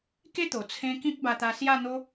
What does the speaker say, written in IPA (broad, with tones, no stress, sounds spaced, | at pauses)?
k e˦ t̪ o˨˩ t͡sʰ ẽ˧ k ĩ˦ k̚ b a˧ t̪ a˧ s j a˥˧ n̪ o˦